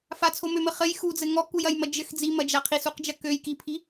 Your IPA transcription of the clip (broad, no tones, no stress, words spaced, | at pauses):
fat͡sʰomømɘ χɘj xud͡zɘ ŋɔkujɐjmɐ d͡ʒɘx d͡zimɐd͡ʒa qʰisuqd͡ʒɐ køj kipʰi